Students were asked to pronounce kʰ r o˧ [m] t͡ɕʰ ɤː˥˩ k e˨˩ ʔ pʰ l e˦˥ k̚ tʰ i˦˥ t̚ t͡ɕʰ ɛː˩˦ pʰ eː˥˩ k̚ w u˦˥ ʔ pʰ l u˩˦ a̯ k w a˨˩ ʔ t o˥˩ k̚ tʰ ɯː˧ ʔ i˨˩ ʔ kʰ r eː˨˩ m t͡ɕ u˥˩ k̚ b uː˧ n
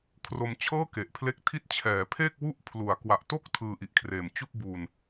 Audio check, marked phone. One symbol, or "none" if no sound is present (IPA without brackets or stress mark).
m